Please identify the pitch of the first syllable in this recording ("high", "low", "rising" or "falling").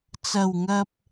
low